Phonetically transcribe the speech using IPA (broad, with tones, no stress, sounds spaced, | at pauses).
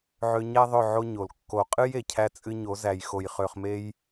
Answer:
ʕ ø˧ ɲ æ˦ ðˤ ɵ˦˨ ʕ o˦ ɲ o˨ l kː o˨ qʼ ɨ˦ j e˨ cʰ æ˦ t͡sʼ ɨ˦ ɲ o˨˦ z æ˨ j x o˨ j χ ø˨ χ m e˧ j